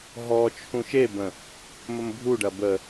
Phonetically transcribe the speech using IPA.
ɦ ɔ t͡ʃʰ ũ ʃ e b ə̃ | m ə m bʱ u ɖ ɐ b ə

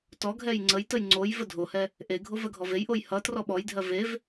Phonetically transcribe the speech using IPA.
t ɔ ɡʱ ɛ j ŋ͡ǀ ə j t ə j ŋ͡ǀ o j v ə dʱ o h ɛ | ʔ e ɡʱ o v ɜ ɡʱ ɔ v e j ʔ o j h ʌ t r ɔ ɓ ɔ j dʱ ɜ v e v

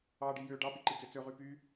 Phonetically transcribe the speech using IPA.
ɑ ɖ i j ø ɖ ɑ p i ǃ i d͡z e t͡s ø ʁ y p y

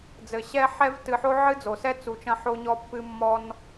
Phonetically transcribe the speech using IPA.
d͡z ɘ˨ ɕ ɛ˦ ħ ɛ˦ v t ɨ˨ ħ o˦ ʕ ɨ˦ d͡z o˨ s ɛ˦ t͡s u˨ t͡ʃ ɐ̃˧ ħ o˧ ɲ ɔ˧ pː ɨ˧ mː ɔ˦ n

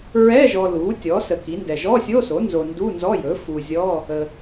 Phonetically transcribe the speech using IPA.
ɹ ɛ˧˥˧ ʒ ɔ˨ l u˩˥ tʲ ɔ˩˥ s ə˨ k i˩˥ n d ɛ˨ ʒ ɔ˧˥˧ sʲ o˧˥˧ s o˩˥ n z o˨ n d u˧˥˧ n z ɔ˧˥˧ j ɵ˩˥ f u˨ zʲ ɔ˧˥˧ | ə˨

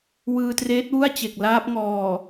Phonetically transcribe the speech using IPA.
w ɯː˧ t r eː˦˥ t̚ w u˥˩ a̯ t͡ɕ e˨˩ k̚ l aː˦˥ p̚ ŋ ɔː˨˩

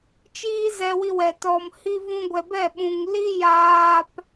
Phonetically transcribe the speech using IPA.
t͡ʃ iː˦ z ɛ˧ w i˧ w ɛ˨ t ɔ˨ m h i˧ v ũ˧ ɡʷ ɛ˨ b ɛ˦˨ ɓ ũ˨ ŋ l i˦ j aː˧ p

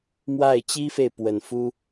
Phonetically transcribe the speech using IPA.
m w a˥˩ ɪ̯ t͡ɕ i˥ f e˨ ɪ̯ p w ə˨˩ n f u˥

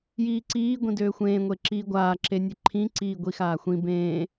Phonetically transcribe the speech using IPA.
j iː ǀ iː ɡʷ ĩ d øː xʷ ẽː ŋʷ e ǁ iː ɡʷ aː ǁ e nʲ e ǃʰ ĩ ǀ iː ɡʷ i x aː xʷ ĩ b ẽː

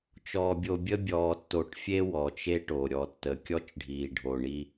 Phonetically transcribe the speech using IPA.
t͡ʃ ɔː˨ bʲ o˨ bʲ ə˦ bʲ ɔː˨ tː o˨ ʈ fʲ e˦ w ɔ˨ t͡ʃ e˦ ʈ o˨ ɾʲ ɔ˨ tː ə˨ kʲ ɔ˦ t͡ʃ ɖʱ iː˨ ɖʱ o˨ ɳ i˦

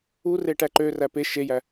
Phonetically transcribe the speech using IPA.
u r e ʈ æ ǃ ø r æ p e ʃ e j æ

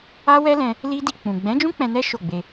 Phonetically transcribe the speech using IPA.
a˦ w ɛ˦ l ɛ̃˧ | l i˦ d i˧ k͡p ũ˨ ɡ͡b ɛ̃˨˦ d͡ʒ ũ˦ k͡p ɛ̃˧ n ɛ˦ ʃ o˦˨ ɡ͡b e˧

